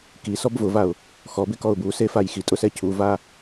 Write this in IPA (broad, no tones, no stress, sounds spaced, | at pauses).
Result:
k i s ɔ b v ʊ v a ʊ̯ | x ɔ b ɪ k ɔ ʊ̯ b u s e f a j x i tʼ ʊ s ɛ cʰ u v a